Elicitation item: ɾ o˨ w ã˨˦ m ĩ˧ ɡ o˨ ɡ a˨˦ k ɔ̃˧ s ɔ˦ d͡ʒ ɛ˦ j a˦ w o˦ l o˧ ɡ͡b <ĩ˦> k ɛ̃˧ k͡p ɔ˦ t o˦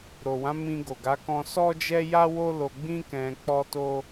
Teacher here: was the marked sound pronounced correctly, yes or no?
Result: yes